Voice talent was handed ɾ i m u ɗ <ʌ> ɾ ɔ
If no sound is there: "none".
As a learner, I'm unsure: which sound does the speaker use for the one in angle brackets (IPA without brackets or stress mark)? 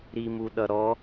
ʌ